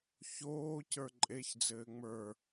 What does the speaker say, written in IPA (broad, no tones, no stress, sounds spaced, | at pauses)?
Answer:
ç oː c ə˞ ǃʼ e ç d͡z ɘː ŋ͡m ə˞